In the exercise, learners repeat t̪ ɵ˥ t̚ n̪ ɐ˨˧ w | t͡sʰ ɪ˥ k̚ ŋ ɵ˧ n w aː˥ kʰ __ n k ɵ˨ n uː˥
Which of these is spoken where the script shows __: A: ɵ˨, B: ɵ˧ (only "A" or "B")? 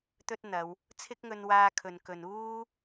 A